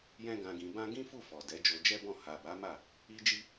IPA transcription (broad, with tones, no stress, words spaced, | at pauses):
jɛ̃˦ɡã˧ɡĩ˧ bã˦ ɡĩ˦fu˦˨fɔ˨ dɛ˨˦d͡ʒo˧d͡ʒɛ˦bɔ̃˦˨ ha˨ba˨˦ma˦˨ | i˦d͡ʒi˦